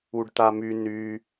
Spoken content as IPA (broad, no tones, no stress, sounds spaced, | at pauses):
u ɖ t̪ a m y n y